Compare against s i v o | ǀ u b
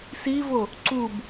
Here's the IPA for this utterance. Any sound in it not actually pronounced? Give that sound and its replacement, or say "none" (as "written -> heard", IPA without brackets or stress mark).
none